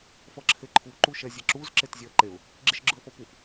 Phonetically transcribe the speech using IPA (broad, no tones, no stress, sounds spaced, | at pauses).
f ʌ ǁʰ e ǃʰ u ǃ u ʃ ɛ zʲ ɛ ǁ u z ǁ e t zʲ ɛ ə̯ ǃ e ʊ̯ | ɡ͡ǁ i ʃ ɡ͡ǁ ɯ ə̯ f ʌ p u f